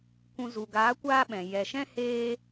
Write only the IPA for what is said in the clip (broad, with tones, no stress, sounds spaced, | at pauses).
kʷ ũ˧ z u˨ ɡ aː˨˦ kʷ aː˦ ɓ ɛ̃˨ j ɛ˨ ʃ ɛ̃˦ h eː˦